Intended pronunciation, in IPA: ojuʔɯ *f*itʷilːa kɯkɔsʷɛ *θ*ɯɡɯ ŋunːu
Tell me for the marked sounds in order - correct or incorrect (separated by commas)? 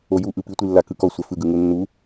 incorrect, incorrect